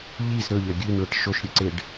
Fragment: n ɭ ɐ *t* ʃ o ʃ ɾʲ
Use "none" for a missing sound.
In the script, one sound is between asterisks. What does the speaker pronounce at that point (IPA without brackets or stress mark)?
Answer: ʈ